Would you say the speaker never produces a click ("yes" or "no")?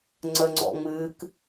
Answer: no